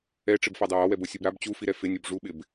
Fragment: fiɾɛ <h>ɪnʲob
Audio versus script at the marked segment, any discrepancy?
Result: yes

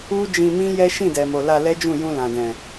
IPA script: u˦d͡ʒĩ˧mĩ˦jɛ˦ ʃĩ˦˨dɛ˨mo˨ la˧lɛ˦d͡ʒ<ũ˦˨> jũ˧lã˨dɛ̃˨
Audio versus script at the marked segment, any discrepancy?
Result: no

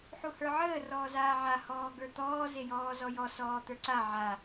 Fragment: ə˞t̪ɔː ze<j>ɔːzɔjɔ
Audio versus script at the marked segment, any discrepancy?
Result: no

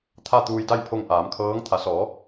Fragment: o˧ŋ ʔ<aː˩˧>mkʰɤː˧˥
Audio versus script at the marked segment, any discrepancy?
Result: no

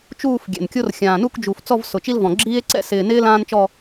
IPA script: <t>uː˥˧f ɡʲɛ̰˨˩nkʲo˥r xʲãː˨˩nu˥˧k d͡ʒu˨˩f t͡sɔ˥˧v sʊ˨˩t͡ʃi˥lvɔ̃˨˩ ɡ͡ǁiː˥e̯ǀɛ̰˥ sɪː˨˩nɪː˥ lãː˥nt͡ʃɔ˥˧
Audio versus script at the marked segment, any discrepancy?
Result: yes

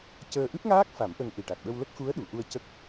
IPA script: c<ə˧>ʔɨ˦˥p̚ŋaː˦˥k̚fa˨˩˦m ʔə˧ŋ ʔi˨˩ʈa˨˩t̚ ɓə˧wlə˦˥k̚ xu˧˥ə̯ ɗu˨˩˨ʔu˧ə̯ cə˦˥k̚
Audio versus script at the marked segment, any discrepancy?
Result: yes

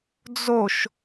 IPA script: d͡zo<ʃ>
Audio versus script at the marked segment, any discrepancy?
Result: no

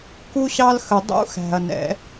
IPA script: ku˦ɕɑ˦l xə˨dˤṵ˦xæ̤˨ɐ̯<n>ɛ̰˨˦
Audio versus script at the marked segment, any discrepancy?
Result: no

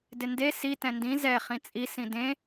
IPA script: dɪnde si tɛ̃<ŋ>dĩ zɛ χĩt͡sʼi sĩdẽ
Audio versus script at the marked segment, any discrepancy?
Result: yes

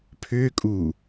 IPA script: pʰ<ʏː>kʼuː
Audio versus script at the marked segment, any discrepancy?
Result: no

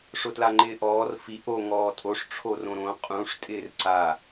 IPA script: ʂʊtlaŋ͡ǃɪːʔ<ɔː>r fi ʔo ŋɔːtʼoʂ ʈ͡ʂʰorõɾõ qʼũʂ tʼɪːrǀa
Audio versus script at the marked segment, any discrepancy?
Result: no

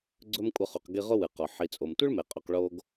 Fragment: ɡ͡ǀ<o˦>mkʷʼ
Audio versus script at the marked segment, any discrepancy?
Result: yes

